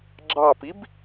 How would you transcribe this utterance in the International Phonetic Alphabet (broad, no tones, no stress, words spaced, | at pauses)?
ɡ͡ǁɑpib